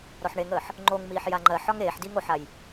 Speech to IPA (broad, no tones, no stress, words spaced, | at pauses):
ɾɔħɳeŋəːħ | ŋ͡ǃoŋmiːħ jaŋ͡ǃɜħɒŋ eːħdiŋ oħaj